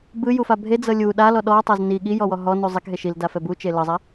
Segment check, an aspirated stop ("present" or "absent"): absent